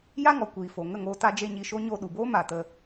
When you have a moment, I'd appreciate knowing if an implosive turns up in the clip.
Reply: yes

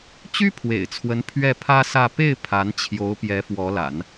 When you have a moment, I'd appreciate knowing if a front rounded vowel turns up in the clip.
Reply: yes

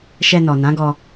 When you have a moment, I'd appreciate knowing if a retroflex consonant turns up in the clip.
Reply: no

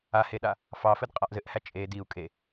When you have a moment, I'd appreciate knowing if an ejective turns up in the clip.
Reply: yes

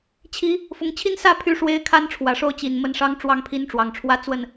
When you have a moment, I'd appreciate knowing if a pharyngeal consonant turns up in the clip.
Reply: no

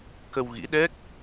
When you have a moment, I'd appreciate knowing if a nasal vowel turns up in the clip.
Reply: no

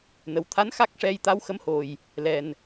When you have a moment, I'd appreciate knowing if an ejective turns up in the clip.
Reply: no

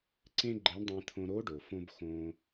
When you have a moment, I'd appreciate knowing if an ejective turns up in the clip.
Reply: no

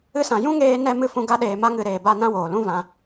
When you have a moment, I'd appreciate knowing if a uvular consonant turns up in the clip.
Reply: no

